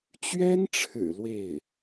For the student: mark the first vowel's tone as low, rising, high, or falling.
high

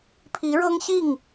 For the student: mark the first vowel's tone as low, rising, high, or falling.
rising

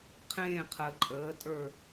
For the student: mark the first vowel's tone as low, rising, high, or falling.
falling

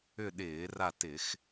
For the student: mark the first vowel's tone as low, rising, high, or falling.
falling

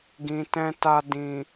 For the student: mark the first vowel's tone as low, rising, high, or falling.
low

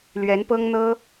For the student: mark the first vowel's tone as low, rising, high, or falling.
rising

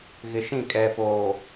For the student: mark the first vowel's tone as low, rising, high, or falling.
low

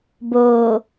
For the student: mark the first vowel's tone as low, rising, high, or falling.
low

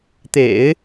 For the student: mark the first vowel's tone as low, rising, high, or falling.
low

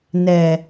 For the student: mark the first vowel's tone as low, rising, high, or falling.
low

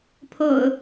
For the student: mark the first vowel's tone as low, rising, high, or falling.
low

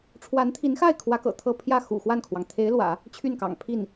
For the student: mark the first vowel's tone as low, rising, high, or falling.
rising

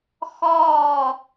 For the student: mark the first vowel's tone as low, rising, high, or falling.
falling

